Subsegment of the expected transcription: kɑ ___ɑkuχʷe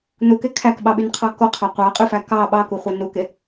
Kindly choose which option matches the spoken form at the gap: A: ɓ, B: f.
A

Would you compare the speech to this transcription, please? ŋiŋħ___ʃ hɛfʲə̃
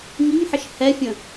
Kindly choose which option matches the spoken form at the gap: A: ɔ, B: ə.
B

